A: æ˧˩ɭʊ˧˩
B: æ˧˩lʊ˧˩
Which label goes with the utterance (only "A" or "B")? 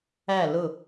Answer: B